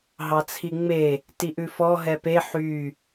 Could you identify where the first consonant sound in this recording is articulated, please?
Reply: glottal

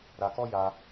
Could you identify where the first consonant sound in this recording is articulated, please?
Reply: alveolar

